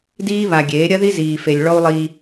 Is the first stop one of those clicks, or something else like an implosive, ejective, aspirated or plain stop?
plain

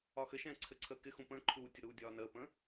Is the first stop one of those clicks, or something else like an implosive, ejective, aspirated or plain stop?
click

